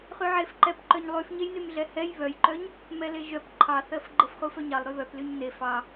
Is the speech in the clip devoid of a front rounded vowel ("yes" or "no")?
no